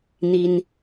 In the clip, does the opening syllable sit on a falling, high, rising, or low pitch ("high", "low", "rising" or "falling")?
high